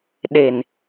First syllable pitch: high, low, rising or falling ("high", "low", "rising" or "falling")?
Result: low